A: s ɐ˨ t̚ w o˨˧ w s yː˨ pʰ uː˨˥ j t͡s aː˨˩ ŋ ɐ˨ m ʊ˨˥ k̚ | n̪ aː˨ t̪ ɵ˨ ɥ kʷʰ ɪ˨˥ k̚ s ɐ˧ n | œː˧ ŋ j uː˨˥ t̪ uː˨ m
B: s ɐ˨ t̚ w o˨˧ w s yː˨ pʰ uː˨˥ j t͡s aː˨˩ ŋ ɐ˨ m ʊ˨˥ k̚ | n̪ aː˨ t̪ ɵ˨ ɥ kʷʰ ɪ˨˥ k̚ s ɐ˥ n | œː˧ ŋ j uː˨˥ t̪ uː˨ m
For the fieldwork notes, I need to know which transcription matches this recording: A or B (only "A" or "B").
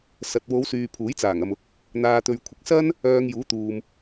B